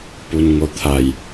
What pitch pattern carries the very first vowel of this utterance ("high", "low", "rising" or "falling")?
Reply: low